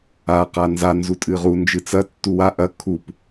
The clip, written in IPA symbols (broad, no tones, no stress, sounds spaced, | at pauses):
a q a n z a n z u tʼ ɨ ʁ u n d͡ʒ ɨ t͡s ɐ tː u w a ʔ ɐ kʰ u p